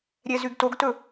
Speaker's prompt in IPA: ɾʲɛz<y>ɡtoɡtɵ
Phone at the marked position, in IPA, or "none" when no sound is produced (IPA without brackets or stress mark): y